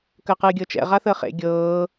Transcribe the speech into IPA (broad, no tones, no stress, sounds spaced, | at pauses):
k əː q ɨː ɡʲ ɤ t͡ʃ ɛ̰ ʁ a θ əː χ ḛ ɡʲ ɤː